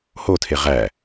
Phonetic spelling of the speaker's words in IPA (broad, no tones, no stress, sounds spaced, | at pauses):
h o tʰ e ʁ æ